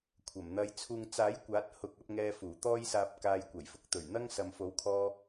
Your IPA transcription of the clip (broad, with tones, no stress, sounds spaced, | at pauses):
kʷʰ ɐ˨˩ m n̪ ɐ˧ j t͡sʰ uː˨ ŋ t͡s aː˨˥ j kʷ aː˨˥ t̚ h ʊ˨ k̚ ɐ˧ p̚ ŋ ɛː˧ f uː˨˩ t̪ ɔː˥ j s aː˧ p̚ k aː˧ j kʷ ɐ˨˩ j f ʊ˨˥ k̚ t̪ ɵ˨˩ ɥ n̪ ɐ˥ ŋ s ɐ˨ m f o˨˥ w kʰ ɔː˧